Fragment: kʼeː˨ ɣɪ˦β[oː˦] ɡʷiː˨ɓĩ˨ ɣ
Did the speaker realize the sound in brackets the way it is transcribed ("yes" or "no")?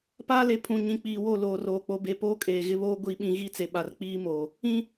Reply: yes